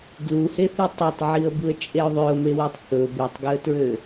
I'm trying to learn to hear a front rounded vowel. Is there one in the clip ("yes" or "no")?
yes